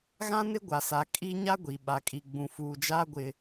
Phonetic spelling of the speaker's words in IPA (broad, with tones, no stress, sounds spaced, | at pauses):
ɣ ã˦ n ɪ˦ ɡʷ a˨ s a˨ kʼ i˦ ɲ a˦ ɡʷ i˨ ɓ a˨ kʼ i˨ ɡ͡b ũ˨ f uː˨ d͡ʒ aː˦ ɡʷ ɪ˦